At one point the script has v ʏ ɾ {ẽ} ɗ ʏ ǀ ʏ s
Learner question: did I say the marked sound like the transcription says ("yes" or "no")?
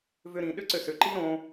no